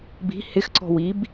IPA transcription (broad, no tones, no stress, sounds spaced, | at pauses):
b i̤ h ɪ x ǀ ɔ̤ w i b